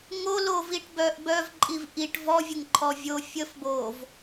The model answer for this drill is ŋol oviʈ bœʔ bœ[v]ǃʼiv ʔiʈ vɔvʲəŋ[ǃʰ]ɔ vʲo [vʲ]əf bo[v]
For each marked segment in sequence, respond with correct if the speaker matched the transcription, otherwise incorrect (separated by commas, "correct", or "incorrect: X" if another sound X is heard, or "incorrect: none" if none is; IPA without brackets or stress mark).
correct, correct, incorrect: fʲ, correct